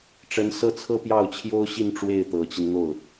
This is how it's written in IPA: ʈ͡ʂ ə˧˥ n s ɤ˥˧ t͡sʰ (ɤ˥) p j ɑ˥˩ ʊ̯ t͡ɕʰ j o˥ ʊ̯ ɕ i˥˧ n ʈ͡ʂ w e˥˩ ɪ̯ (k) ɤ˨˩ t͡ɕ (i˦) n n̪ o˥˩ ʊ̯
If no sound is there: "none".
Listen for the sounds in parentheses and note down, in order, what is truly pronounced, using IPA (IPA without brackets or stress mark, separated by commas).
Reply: ɤ˥˧, t̪, i˦